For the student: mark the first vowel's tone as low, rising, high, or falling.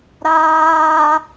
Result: high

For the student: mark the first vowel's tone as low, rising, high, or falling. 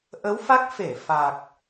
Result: rising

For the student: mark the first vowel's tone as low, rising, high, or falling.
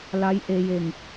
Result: rising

